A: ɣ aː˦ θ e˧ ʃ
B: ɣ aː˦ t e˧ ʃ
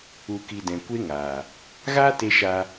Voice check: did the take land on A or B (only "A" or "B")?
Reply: B